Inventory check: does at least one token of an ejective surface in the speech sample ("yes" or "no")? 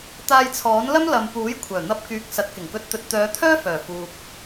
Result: no